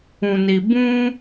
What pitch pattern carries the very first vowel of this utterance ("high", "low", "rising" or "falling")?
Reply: low